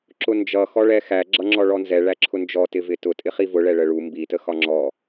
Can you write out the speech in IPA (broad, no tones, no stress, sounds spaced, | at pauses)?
ǁ ʊ n d͡ʒ ʌ x ɔ ɭ ɛ x æ ɡ͡ǁ ʌ ŋ͡ǁ ɔ ɭ ɔ n z ɛ ɭ æ ǁʰ ʊ n d͡ʒ ɔ t ɪ v ɪ t ʊ tʼ ɪ χ i v ʊ ɭ ɛ ɭ ə ɭ u m b i t ə x ɒ ŋ͡ǁ ɔ